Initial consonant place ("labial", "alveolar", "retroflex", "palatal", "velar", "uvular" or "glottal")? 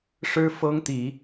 retroflex